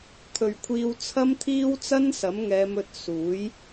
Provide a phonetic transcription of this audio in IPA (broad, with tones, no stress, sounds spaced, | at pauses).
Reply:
t̪ʰ ɵ˨ ɥ kʷʰ iː˧ w t͡sʰ ɐ˥ m t̪ʰ iː˥ w t͡s ɐ˥ n s ɐ˨˥ m ŋ ɛː˨˧ m ɵ˧ t̚ s uː˨˥ j